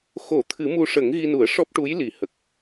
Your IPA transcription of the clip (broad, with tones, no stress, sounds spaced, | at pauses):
x o˨˩˦ t̪ʰ ɨ˨˩˦ m u˧ ʂ ə˨˩˦ ŋ ɣ i˧ n u˨˩˦ ə̯ ʂ ɔ˦˥ p̚ ʈ u˧˥ j l i˨˩˦ h ə˨˩ k̚